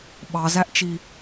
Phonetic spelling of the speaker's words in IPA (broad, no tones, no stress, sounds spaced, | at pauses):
ɓ ɑ z æ ʔ t͡ʃ i